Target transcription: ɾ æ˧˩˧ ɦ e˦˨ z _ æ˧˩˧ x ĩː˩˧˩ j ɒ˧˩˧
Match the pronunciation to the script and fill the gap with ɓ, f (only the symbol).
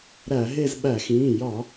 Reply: ɓ